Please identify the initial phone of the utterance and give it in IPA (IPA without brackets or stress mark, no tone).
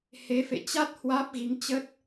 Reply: h